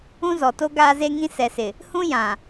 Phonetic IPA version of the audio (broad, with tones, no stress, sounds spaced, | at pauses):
ũ˦ z ɔ˨ t o˦ ɡ aː˦ z e˦ ŋ ĩ˦ s ɛ˨ s ɪ˨ | h ũ˦ j ã˨